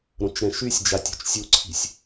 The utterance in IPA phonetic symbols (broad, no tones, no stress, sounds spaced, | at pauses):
ɾ õ t͡ʃ ɾ ɛ̃ ʃ y sʲ d͡ʒ a tʲ ṳ t͡ʃ sʲ u ǀʰ i̤ sʲ